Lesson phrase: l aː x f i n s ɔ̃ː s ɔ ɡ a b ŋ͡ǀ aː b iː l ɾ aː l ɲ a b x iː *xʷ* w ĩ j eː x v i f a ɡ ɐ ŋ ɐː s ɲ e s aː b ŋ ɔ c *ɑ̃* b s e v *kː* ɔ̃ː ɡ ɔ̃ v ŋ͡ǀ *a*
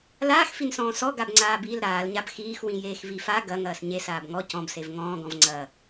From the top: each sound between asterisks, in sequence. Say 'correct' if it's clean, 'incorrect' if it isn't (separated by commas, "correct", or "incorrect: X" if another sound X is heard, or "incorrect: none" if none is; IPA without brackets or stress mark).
incorrect: x, incorrect: ɔ̃, incorrect: ŋ, incorrect: ɐ